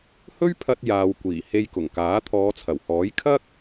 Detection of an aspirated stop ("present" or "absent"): present